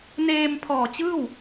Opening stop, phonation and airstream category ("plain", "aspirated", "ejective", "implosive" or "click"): aspirated